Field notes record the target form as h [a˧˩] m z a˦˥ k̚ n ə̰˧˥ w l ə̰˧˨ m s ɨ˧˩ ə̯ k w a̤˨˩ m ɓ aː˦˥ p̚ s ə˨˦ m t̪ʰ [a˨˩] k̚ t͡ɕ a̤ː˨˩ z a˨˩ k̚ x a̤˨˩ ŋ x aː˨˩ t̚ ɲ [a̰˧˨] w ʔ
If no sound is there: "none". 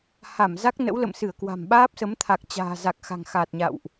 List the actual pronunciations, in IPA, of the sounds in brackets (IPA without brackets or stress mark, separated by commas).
a˧˩, a˨˩, a̰˧˨